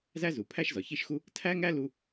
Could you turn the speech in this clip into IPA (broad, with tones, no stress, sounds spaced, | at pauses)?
z æ˥ z u˩ pʰ æ˥ ʃ z ɒ˩ ç i˥ ʃ x u˥ | tʰ æ˥ ŋ æ˥ l u˥